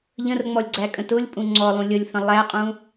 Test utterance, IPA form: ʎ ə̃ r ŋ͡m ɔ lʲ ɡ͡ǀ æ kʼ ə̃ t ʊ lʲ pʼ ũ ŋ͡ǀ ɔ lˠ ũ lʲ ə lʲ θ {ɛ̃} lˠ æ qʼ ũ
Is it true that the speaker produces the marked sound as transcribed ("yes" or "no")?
no